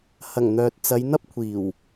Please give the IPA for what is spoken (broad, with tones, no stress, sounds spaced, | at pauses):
h ɐ˨˩ ŋ n̪ œː˨ t̚ t͡s ɐ˨˧ j n̪ ɐ˥ p̚ kʷʰ iː˨˩ w